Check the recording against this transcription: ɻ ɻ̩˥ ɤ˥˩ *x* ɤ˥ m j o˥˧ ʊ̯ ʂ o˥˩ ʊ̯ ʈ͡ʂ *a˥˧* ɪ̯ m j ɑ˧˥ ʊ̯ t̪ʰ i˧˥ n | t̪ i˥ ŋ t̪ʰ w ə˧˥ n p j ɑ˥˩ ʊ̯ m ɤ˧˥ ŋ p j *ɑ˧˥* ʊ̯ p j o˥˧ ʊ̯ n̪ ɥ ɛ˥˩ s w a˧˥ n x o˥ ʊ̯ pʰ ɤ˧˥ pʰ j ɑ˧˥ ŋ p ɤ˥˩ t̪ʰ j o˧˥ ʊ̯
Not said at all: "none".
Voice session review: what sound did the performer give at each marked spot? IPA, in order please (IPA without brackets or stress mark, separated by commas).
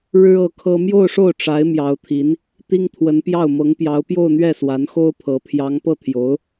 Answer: kʰ, a˧˥, ɑ˧˥